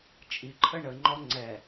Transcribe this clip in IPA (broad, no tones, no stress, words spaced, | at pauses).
t͡ʃʼiǃʰə ɳəŋ͡ǃɔ ŋ͡ǀɛ